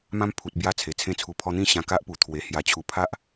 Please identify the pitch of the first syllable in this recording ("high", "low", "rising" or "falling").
high